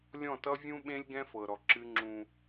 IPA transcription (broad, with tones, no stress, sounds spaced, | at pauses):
lʲ ɔ̃˦˨ t ʌ˦ vʲ ũ˦ ɓ ẽ˦ lʲ ɡ ɛ̃˦ f ɤ˨ ɾ ɔ˨ ǁ ɨ˦ ŋ͡ǁ ũ˦